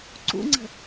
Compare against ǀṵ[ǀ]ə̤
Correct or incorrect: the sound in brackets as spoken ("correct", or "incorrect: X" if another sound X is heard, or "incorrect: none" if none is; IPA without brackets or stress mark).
incorrect: ŋ͡ǀ